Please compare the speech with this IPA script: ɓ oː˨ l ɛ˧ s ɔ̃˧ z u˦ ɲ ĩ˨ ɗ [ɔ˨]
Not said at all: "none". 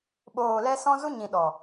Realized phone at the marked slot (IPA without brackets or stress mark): ɔ˨